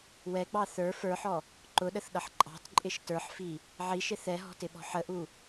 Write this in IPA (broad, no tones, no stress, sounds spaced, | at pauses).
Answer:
w ɛ ɡ͡b ɑ θ ə˞ f ə˞ ħ ɔ | ǃ ʊ ɗ ə θ ɗ ʌ ħ ǃʼ ɑ̤ t ǃʼ ɪ ʃ t ə˞ ħ f i | ʕ i ʃ ɪ θ ɛ ɦ ɔ̤ t ɪ ɓ ɔ̤ ħ ə ʔ u